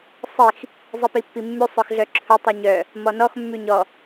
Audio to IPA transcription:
sˤix | zˤipipːimːʉ sˤœxɮœǁʰɵ tˤuɲœ | mɔnɔx mːʉɲɔ

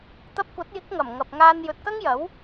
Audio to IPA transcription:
t̪ɐ˧p̚kʷɐ˨˥t̚jɪ˨˥k̚ŋɐ˨˩m ŋɐ˨p̚ŋaː˧n jɵ˨t̚kɐ˥ŋjɐ˨˥w

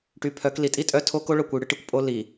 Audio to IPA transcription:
ʈy˨˦ pʰœ˨˦k li˨tʼi˦ tʼœ˦tʰo˦k o˦ɭœ˦˨kʷy˨ ɽɨ˦ʈi˦kʷ pʼo˦li˨

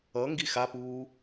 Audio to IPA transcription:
ʌ ŋɡixapuː

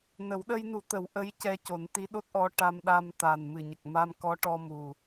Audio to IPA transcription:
nə˨˩˦w ɗə˧jnu˨˩˦ t̪ə˨˩˦w ʔə˧˥jcɛ˧ co˨˩˦nt̪i˧˥ɗo˦˥t̚ʔɔ˧˥ ʈa˧mɗa˧mt̪a˨˩n mɨ˨˩ɲə˨˩k̚ ma˧mkɔ˧˥ ʈɔ˧mu˨˩

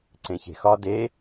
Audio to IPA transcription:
ǀẽçe̤xɒ de

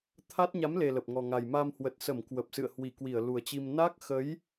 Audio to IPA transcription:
t̪ʰa˦˥t̚ ɲa˨˦mle˨˩ lə˨˩p̚ŋɔ˨˩ŋa˨˩j ma˧mhwə˨˩t̚sə˧˩m kwə˨˩p̚sɨ̰˧˨ə̯ hwi˧˩ kwi˧˩ə̯lu˨˩ə̯t͡ɕi˧m na˦˥k̚xə˨˦j

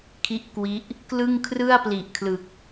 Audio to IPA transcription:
kʰi˥˩ʔkwi˦˥ʔ | klɯ˥˩ŋkʰrɯ˥˩a̯ pli˨˩ʔkʰlɯ˨˩k̚

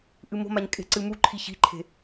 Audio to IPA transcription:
ʔɨmo̤maɲ kʼe̤ǀɨmuǃʰi çi̤ǃʰe̤

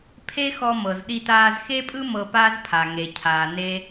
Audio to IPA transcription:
pʰe˥xɔ˧ mɤ˩zɗi˧taː˧z xe˥pʼɯ˥ mɤ˧pa˥z pʰa˩ ŋe˩cʰaː˩ ne˥

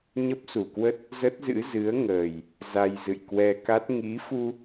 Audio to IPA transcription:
ɲə˦˥p̚su˧˩kwə˦˥t̚ | zə˦˥t̚zɨ̰˧˥ zɨ˨˦ə̯ŋəː˨˩j | za˧jzɨ̰˧˨jkwɛ˧ ka˦˥t̚ ŋi˨˦fu˧

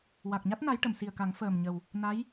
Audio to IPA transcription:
wa˨˩k̚ɲa˦˥t̚ na˧˥jʈə˨˩˨msi˨˩ə̯ka˨˩˦ŋ fəː˨˩mɲə˨˩w | na˧˥j

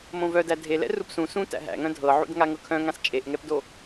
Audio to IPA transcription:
mõvœdæ dʱelɛ̰ rupsũ sũ tæ̰ɦæ̰ŋœ̃ dʱɤʕṵd ŋaŋɤkʰœ̃ŋãs t͡ʃʼeʔŋɛpdo

